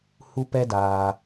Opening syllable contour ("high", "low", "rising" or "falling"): high